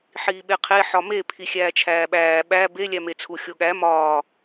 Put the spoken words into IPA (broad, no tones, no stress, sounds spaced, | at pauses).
ħ iː ɓ e qʰ e ħ ɒ m e pʰ i xʲ æː t͡ʃʰ æː ɓ æː ɓ æ b e lʲ æ m e t͡sʰ u xʲ o ɠ æ m ɒː